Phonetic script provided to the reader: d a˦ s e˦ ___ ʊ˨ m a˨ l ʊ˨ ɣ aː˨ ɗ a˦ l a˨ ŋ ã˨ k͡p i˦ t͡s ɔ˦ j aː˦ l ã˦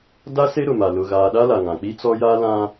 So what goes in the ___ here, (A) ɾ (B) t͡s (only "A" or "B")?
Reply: A